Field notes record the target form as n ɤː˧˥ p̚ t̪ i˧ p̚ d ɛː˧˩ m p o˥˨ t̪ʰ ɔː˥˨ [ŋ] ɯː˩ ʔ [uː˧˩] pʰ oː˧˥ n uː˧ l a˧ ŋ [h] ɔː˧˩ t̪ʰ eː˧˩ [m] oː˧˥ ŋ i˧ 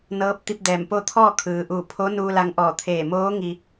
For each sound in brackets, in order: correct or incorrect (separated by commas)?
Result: incorrect, correct, incorrect, correct